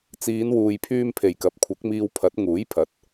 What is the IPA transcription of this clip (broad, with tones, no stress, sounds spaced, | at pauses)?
t͡s iː˨˧ n w uː˨ j pʰ yː˧ m pʰ e˨˩ j k ɐ˨˥ p̚ kʷʰ ɐ˨˥ k̚ m iː˧ w pʰ ɐ˨˥ t̚ ŋ uː˨˥ j pʰ ɐ˨˥ t̚